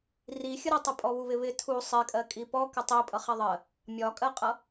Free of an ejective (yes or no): no